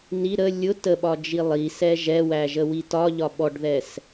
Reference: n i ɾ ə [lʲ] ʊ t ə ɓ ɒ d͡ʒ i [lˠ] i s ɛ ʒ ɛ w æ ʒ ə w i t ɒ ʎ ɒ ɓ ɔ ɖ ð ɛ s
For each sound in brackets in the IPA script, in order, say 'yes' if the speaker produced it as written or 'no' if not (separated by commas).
yes, yes